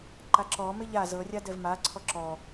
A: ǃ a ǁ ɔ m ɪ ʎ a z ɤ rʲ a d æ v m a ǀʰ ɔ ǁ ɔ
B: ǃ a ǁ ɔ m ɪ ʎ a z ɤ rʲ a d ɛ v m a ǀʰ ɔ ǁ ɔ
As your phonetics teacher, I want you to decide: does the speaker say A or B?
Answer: B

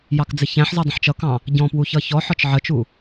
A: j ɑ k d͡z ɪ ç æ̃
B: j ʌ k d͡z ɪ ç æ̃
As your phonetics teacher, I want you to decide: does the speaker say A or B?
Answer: A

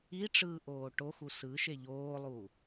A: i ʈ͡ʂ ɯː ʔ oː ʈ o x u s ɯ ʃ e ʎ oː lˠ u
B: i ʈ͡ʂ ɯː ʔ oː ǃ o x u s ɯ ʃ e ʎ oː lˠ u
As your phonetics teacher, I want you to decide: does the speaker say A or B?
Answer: A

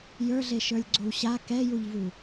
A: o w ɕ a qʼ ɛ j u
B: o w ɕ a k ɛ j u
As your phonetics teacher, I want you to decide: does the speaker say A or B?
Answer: B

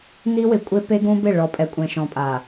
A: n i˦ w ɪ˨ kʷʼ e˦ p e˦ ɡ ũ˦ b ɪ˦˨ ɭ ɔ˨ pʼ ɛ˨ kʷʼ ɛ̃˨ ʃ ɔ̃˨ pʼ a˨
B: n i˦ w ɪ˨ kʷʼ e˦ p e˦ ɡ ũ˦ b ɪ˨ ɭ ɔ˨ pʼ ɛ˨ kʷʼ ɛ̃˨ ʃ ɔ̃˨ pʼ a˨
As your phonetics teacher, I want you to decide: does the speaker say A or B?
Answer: A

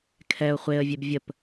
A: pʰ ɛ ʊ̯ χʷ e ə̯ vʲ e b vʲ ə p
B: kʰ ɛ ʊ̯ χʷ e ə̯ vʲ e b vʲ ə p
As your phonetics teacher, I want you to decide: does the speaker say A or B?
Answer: B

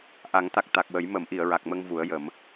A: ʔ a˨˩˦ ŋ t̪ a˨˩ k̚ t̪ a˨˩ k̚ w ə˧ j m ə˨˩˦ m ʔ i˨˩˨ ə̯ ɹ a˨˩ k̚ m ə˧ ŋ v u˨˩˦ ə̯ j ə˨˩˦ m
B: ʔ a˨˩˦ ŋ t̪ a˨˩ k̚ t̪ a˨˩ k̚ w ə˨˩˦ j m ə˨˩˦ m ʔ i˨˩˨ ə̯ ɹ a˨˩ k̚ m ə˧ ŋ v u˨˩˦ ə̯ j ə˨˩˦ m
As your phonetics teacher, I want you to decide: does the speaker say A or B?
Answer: B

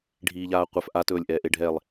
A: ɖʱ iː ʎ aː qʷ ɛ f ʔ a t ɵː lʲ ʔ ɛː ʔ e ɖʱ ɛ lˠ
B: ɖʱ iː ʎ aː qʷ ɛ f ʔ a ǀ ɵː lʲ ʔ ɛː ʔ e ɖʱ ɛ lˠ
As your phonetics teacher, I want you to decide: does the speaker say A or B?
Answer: A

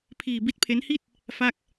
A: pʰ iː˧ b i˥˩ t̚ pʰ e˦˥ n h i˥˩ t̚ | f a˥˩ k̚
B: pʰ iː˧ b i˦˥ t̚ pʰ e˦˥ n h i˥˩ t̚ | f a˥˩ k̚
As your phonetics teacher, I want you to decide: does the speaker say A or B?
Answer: B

